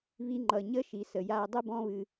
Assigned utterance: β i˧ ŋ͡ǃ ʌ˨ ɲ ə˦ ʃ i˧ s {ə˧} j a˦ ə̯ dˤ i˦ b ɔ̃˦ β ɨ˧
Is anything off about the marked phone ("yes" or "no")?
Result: no